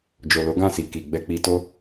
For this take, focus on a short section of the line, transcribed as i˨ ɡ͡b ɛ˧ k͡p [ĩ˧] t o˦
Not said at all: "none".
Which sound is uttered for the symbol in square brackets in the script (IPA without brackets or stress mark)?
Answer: i˧